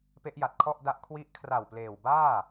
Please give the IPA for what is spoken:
pe˦˥ʔja˨˩t̚kʰɔ˥˩ʔda˦˥ʔ kʰwi˦˥ʔ kʰra˨˩w pleː˨˩wbaː˥˩

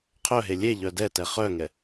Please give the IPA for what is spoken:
qʰœɦe lʲeʎœ dɛtɛ χœŋɛ

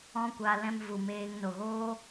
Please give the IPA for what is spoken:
ɔ̃˦kʷaː˧ lɛ̃˧m vu˨meː˧ŋ no˨ɣoː˦

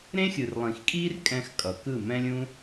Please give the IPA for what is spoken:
ɾẽ˦xʲɯ˨rlˠĩ˨xkʼiː˦r kʼɛ̃˧x kʼʌ˨kɯ˦˨ mɛ̃˦lʲũ˦

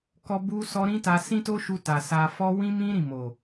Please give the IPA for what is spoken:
kɔ˧ bu˦sɔ˦ ɾĩ˦ta˧ sĩ˦to˦ʃu˧ ta˨sa˧ fɔ˦ wĩ˦mĩ˦ ɾĩ˦˨mo˨

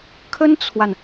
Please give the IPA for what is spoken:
kʰə˥nt͡sʰwa˨n

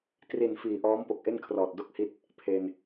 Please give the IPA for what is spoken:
tri˨˩n fiː˨˩ʔɔː˦˥m po˨˩k̚ʔe˥˩nkʰrɔː˨˩t̚ do˥˩k̚hi˦˥t̚ | pʰe˧n

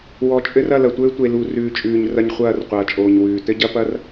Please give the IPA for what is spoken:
wɔ˨t͡ʃʼɘ˦r ɐ˦˨lɐ˨tʷɘː˦tʷe˨ lu˨rʉː˨t͡ʃʼʉː˨ɲ rɐ˦ɲχʷɐː˦˨rqʷɐː˨t͡ʃʼoː˨ɲ wʉː˨ tɘ˦ɟɐ˦pɐ˦r

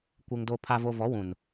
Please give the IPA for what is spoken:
kʷe˨ŋdo˨ pʰa˨vo˨ vɔ˨˦wũ˨n

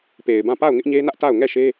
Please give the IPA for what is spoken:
pe˨ɪ̯bã˦˨ pa˦˨ʊ̯ ŋɪ˦ʔɲe˦nä˦ʔta˦˨ʊ̯ ŋɛ˦˨ʃe˦

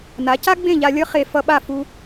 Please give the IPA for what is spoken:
na˩˥ ca˥ɡ͡bẽ˥˩ʎa˧ lʲʌ˥χe˧ fʌ˧ɓa˥˩ fu˧

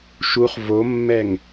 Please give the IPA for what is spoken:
ʃuχ vomːɛŋ

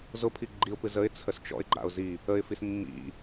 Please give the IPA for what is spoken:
zʊpʰi ɡ͡ǃiʊ̯pɨ zəɪ̯ t͡sʰəst͡ʃɔ̰ɪ̯ɡ͡ǃa̰ʊ̯ zi | əɪ̯fis mːḭ

